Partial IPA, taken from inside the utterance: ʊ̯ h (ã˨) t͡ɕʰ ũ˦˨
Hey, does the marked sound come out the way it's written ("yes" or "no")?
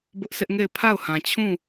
yes